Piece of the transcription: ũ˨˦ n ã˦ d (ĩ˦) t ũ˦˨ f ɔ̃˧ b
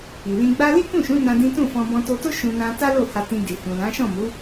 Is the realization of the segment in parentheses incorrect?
no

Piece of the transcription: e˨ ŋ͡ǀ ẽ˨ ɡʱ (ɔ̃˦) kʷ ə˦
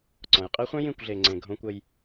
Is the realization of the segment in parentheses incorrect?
yes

